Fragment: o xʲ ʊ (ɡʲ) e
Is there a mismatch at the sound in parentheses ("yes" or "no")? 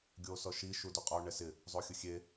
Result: yes